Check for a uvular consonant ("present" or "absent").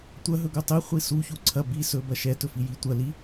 present